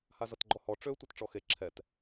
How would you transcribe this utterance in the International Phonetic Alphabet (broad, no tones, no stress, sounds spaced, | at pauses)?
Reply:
h a z ʌ t ɡ͡ǃ ɔ h ɔ ʈ͡ʂ ø tʷ ɤ t ʈ͡ʂ ɔ x e ǁʰ ɛ t